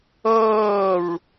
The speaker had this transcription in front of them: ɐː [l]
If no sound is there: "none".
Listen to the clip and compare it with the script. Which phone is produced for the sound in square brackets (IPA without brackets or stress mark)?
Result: ɹ